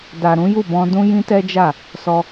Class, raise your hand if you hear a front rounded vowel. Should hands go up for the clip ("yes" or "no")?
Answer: no